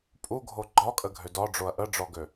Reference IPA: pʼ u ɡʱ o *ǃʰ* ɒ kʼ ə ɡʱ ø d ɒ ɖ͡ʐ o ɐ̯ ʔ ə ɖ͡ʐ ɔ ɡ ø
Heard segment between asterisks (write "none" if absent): ɡ͡ǃ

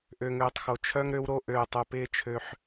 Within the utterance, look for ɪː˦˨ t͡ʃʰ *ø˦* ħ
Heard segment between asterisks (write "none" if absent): ø˦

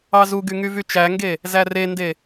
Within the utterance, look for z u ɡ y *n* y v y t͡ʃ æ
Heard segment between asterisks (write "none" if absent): ŋ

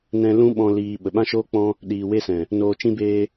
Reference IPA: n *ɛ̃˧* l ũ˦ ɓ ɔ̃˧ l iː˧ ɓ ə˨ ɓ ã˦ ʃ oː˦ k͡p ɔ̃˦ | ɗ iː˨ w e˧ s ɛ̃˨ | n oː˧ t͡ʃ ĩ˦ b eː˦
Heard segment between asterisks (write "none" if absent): ɛ̃˧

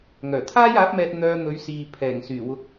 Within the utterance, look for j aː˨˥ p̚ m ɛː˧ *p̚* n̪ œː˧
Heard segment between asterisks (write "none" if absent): t̚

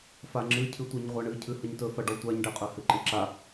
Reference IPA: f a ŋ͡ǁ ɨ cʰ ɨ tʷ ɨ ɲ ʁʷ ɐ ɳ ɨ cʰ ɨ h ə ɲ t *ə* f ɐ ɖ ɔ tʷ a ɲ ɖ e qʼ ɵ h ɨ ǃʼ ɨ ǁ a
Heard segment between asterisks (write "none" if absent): ɵ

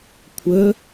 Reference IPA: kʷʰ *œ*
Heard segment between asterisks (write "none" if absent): ə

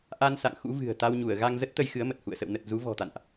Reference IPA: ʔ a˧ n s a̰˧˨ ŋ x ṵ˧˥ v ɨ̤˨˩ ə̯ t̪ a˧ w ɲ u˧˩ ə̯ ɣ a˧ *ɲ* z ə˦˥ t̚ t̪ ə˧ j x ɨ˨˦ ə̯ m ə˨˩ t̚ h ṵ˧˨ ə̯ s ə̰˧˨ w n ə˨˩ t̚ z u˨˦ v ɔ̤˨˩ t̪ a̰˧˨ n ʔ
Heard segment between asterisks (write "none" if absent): ŋ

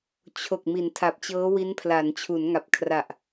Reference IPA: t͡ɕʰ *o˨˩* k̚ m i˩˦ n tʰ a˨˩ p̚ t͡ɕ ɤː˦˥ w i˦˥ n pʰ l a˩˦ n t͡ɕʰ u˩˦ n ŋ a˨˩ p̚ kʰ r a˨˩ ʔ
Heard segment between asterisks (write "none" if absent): o˨˩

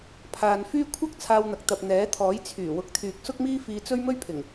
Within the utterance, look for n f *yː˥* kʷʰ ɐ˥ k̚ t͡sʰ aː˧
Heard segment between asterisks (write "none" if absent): yː˥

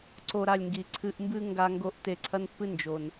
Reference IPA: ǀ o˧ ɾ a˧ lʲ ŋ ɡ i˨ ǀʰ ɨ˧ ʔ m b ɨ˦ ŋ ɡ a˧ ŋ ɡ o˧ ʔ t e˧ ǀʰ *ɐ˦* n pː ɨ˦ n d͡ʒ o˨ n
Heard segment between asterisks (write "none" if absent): ɐ˦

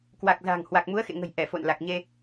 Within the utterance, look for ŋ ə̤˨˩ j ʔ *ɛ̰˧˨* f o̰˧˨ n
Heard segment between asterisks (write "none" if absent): ɛ˧˩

